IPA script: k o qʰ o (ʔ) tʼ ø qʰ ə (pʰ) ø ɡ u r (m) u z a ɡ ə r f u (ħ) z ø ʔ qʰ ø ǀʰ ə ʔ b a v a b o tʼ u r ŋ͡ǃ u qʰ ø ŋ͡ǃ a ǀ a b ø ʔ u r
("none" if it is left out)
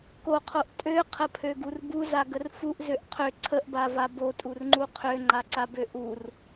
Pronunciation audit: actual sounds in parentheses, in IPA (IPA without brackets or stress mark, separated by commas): ʔ, pʰ, b, ʔ